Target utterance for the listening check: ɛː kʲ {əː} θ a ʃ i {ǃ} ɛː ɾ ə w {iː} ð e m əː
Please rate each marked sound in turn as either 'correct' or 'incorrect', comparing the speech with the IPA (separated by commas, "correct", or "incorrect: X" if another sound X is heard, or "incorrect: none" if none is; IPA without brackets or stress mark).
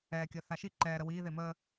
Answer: correct, correct, correct